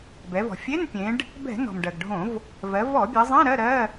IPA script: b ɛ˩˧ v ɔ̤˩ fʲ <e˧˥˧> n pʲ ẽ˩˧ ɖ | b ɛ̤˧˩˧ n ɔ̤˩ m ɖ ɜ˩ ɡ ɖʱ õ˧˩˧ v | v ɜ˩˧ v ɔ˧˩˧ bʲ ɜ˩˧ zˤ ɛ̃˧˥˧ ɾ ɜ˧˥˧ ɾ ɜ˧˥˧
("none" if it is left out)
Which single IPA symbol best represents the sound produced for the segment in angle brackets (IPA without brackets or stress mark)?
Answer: e˧˥˧